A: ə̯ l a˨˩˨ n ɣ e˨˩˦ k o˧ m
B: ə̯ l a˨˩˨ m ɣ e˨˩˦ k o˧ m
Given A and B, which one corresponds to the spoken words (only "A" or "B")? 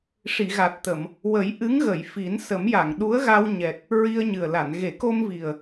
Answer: A